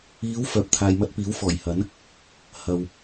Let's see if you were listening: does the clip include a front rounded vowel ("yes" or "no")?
yes